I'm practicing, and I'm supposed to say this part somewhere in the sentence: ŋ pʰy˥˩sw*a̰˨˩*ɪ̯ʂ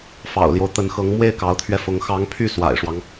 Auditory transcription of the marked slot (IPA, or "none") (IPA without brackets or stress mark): a̰˨˩